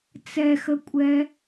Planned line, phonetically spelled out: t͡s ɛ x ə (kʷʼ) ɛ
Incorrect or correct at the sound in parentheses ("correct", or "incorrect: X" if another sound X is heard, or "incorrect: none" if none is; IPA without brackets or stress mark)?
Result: correct